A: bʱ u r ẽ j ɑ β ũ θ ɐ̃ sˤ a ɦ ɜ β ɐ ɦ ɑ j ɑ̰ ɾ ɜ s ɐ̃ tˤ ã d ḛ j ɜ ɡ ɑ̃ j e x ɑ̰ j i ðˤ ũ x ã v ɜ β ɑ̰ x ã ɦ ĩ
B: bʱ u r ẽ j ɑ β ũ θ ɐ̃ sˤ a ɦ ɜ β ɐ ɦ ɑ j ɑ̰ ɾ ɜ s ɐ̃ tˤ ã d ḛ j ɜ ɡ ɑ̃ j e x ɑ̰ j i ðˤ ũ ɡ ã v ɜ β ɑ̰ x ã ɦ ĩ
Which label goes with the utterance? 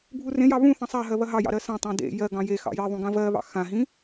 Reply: B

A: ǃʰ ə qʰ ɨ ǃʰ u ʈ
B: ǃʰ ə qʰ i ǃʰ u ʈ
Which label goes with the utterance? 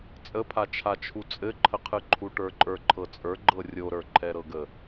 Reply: A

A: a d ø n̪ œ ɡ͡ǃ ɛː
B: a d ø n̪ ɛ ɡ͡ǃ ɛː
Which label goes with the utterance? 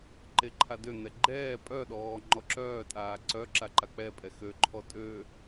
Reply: B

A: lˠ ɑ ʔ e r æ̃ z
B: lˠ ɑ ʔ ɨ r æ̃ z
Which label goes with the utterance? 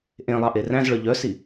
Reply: A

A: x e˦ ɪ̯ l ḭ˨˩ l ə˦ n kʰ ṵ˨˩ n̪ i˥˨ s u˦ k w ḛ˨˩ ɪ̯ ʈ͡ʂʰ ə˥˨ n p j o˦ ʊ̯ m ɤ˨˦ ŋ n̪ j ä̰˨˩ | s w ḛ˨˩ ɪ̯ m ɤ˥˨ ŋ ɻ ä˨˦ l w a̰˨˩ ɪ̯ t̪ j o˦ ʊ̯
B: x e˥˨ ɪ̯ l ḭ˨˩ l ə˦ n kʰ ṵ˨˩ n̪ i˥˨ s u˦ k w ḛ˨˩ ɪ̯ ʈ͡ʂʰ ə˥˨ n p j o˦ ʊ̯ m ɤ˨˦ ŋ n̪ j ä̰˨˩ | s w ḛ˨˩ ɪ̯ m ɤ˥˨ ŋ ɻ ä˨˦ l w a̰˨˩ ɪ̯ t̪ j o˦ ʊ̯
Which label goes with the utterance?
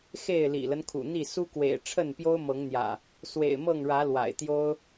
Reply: B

